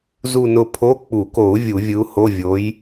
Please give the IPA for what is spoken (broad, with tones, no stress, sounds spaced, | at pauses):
z u˥˧ n ʊ˥˧ pʰ o˧˥˧ k͡p u˨˩˦ k o˨˩˦ u̯ vʲ u˨˩˦ vʲ ɯ˨˥ u̯ h o˧˥˧ vʲ o˨˥ j